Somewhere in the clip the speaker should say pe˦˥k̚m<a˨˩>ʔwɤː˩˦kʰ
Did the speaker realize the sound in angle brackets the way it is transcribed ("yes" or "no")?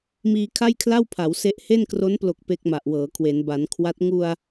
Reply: yes